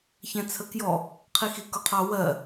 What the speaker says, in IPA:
ç ɛ̃ t͡sʰ ə k j ɔ | qʰ i x i k ʊ qʰ ɑ w ɜ

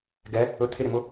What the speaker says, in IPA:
ɡ ɛ | ɵ t̪ʰ ɪ ɾ ɪ m ʊ

